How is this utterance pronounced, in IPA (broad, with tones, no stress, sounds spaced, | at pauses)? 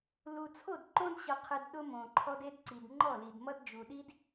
l u˨ t͡sʰ o˦˨ d ǃ õ˦ d ɕ ʌ˨ qʰ ɨ˨ d ɗ ʊ˦ m õ˨ ǃʰ ɔ˦ d e˦ d ǀ i˨ d ŋ͡ǃ ɔ˦˨ l i˨ d m ʌ˦ d d͡ʒ u˨ ɗ i˦ d